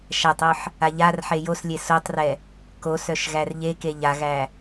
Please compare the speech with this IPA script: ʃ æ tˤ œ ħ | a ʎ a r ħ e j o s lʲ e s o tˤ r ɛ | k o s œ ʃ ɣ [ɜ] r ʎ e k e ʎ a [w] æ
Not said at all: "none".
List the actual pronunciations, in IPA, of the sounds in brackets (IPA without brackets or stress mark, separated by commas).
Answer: æ, ɣ